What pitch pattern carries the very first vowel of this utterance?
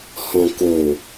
low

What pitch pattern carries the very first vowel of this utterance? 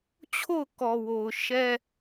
falling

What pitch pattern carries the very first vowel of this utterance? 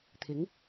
rising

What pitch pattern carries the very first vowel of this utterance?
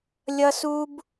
high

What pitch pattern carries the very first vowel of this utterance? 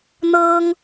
high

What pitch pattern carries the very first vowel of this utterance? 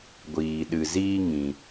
low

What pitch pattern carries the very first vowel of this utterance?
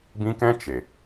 high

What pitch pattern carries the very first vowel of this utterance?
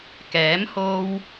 rising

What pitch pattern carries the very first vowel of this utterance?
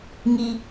high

